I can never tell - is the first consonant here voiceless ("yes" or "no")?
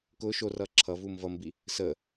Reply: yes